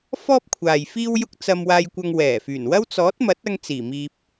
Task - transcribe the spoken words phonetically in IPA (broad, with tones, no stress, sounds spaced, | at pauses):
f ɔː˥ p̚ kʷʰ aː˨ j f iː˧ w j ʊ˧ k̚ t͡s ɐ˧ m w aː˧ j kʷ ɐ˧ ŋ w ɛː˨˩ f yː˨˩ n w ɐ˥ w t͡s ɔː˨˥ t̚ m ɐ˨˥ t̚ ɐ˧ ŋ t͡s iː˨˩ m iː˧ p̚